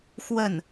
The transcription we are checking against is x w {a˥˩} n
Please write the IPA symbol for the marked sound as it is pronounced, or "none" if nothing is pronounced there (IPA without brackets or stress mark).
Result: ə˥˩